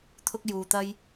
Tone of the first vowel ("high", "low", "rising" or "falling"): high